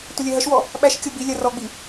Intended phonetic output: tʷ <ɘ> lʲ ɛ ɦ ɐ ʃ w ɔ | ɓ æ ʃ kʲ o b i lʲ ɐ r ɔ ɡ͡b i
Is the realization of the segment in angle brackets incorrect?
no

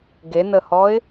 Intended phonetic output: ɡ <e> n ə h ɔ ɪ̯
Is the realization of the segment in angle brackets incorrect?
no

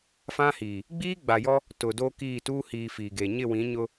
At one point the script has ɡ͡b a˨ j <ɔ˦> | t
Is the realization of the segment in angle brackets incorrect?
no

